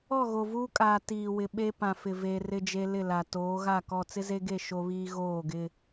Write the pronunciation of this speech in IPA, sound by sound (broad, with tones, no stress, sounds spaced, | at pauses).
ɔ˦˨ ɣ o˨ v uː˦ kʼ aː˨ t iː˨ w ɪ˨ ɓ e˦ p ã˨ f ɪ˨ v e˨ r ɪ˦ d͡ʒ e˦ l ɪ˦˨ l a˨ t oː˨˦ ɣ a˦˨ k ɔ˦˨ t͡s ɪ˦ z e˦ ɡ e˦˨ ʃ o˦ β iː˦ ɣ oː˦˨ ɡ ɪ˦